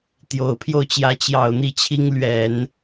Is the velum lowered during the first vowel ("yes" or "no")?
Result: no